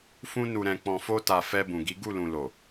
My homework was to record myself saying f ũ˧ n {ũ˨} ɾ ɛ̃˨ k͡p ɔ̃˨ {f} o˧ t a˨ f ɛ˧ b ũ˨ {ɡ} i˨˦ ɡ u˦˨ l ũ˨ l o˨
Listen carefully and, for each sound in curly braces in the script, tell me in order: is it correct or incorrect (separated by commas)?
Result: incorrect, correct, correct